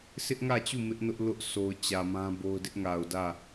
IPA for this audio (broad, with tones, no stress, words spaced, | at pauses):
sʰɪ˦ʔŋä˦˨t͡ɕu˦˨ mɪ˦ʔnʊ˦ʔ lʊ˦ʔsʰo˨ʊ̯ t͡ɕä˨mã˦ bo˦ʊ̯ dɪ˦ʔŋa˨ʊ̯dä˦˨